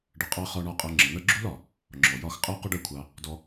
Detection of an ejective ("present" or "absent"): present